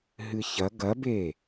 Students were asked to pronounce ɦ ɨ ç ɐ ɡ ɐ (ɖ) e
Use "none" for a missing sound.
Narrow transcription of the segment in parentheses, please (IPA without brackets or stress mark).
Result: b